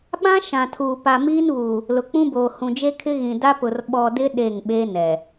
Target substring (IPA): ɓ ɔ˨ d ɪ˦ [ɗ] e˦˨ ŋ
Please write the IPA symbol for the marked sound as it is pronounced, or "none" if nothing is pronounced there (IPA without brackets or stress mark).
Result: ɗ